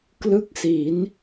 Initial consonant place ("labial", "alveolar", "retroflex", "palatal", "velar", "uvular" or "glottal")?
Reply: velar